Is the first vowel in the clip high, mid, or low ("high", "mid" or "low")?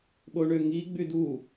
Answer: mid